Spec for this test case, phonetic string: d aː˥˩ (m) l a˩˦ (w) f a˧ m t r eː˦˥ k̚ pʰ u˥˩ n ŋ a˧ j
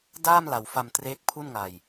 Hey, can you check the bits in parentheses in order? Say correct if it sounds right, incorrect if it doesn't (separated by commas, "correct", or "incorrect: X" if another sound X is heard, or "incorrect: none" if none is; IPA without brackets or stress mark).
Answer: correct, correct